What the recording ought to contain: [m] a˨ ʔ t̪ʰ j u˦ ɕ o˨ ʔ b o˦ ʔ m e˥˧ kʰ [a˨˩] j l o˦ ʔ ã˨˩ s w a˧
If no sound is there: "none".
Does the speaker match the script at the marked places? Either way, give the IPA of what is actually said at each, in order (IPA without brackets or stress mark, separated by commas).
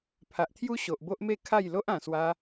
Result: pʰ, a˥˧